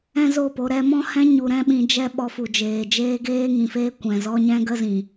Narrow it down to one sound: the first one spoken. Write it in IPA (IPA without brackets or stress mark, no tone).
ɛ̃